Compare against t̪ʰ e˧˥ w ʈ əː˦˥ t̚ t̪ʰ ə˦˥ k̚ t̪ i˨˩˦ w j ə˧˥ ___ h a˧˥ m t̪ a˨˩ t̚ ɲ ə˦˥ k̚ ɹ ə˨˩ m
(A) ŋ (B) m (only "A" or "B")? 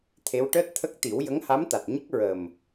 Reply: A